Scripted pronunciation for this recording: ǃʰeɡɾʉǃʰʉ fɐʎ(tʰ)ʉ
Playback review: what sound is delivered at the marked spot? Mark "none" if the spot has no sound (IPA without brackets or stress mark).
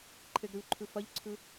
ǀʰ